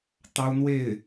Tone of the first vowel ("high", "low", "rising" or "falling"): high